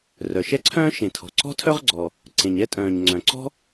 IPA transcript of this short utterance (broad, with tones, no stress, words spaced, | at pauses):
rœ˩ʃɛ˥ǀʰœ̃ː˥ ʃẽ˩ tʰɔ̤˩ǀɔ̤˥tʰœ˥ʁɡ͡ǀɔ˩ | ǀẽ˩ɲɛ˥tʼœ̃ː˩ɲ ŋ͡ǀœ̃˩ǀɔ̤˥